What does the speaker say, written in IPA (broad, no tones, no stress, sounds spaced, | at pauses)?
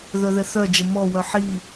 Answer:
ð œ ð ɛ θ œ d͡ʒ ə m ɔ w œ ħ i